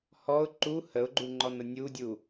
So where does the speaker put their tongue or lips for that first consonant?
throat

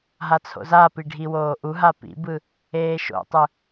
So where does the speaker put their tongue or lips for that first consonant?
throat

